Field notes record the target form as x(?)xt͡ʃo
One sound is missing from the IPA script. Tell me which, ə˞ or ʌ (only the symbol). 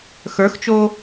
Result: ə˞